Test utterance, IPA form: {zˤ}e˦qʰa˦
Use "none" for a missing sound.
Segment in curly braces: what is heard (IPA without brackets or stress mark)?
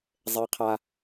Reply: zˤ